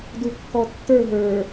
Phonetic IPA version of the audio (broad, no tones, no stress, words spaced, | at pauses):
dukːɔtːə˞ ɦə˞